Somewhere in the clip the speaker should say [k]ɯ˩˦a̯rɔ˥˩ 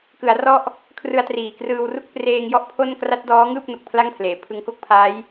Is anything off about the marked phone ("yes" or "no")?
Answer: no